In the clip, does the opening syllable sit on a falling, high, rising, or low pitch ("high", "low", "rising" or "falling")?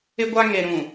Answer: high